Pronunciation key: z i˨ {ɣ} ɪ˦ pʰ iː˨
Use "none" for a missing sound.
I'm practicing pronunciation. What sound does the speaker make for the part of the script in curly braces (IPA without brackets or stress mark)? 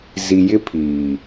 j